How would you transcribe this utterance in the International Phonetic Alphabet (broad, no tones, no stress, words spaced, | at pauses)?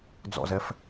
d͡zɔ̰zɛf